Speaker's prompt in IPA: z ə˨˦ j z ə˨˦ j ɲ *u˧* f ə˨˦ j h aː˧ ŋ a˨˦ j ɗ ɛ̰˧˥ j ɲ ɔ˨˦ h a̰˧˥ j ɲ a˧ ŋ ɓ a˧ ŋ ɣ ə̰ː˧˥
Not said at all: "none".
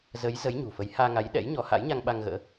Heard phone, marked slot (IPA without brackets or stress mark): ṳ˨˩